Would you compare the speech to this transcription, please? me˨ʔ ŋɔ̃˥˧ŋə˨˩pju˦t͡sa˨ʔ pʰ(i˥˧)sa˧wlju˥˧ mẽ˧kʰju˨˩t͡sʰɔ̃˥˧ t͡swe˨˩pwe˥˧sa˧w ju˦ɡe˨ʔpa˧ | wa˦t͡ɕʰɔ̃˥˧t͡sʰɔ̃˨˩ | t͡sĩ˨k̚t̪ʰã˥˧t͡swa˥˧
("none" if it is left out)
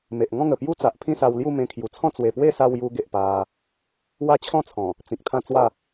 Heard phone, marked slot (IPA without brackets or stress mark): ĩ˥˧